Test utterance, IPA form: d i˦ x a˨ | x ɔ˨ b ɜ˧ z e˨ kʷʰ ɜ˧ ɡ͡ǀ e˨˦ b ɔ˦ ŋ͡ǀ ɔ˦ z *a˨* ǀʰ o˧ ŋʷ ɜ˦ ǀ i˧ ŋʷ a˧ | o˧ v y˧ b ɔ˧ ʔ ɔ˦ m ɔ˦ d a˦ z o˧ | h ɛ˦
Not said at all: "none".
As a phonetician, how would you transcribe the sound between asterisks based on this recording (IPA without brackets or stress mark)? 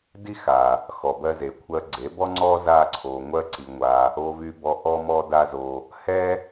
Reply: a˦